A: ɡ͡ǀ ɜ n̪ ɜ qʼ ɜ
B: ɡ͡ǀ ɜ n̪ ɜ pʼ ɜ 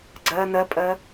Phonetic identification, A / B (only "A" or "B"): B